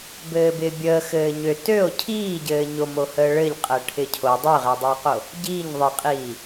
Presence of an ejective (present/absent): present